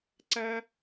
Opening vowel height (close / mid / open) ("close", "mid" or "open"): open